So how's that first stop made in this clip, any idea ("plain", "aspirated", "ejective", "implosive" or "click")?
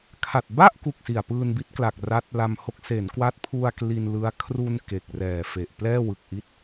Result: aspirated